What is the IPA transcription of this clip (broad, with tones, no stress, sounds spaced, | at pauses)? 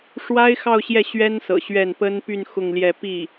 ʂ w a˥ ɪ̯ x ɑ˥˧ ʊ̯ ɕ j ɛ˥˩ ɕ ɥ ɛ˥ n s ɤ̰˨˩ ɕ ɥ ɛ˥˩ n p ə˥ n p y˥˧ n x ʊ˥˧ ŋ l j ɛ˥˧ p i˥˩